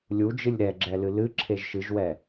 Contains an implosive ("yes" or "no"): no